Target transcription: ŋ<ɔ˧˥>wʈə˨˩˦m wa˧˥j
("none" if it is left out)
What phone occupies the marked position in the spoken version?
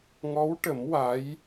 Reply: ɔ˧˥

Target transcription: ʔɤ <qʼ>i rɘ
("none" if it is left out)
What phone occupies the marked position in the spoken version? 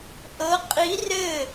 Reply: qʼ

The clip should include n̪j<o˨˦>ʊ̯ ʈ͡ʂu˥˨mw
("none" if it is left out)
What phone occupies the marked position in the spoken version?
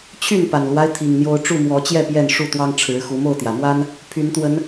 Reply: o˦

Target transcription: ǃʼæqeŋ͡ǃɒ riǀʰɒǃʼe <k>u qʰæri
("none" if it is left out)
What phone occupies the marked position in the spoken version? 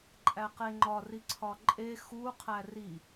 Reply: x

